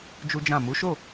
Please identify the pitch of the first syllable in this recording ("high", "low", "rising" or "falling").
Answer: high